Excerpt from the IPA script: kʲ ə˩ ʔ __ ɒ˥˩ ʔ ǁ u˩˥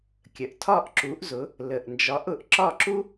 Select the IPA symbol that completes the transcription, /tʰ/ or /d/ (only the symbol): tʰ